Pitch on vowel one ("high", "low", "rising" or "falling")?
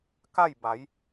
falling